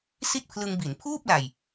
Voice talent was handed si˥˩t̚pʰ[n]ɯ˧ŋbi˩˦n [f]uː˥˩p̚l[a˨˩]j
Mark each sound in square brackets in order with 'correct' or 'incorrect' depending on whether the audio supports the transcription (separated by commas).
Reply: incorrect, incorrect, correct